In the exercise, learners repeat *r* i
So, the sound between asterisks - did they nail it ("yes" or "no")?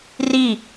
yes